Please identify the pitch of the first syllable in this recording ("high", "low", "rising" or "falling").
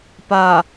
low